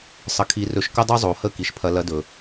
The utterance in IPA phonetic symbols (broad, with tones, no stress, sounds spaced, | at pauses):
sˤ ə˧ kʰ i˧˥ r ɵ˧˥ ʃ k ə˥ dˤ ʉ˥ zˤ o˩˧ h ə˧˥ k i˩ ʃ pʰ ɐ˧˥ l ɐ˧˥ d ɵ˩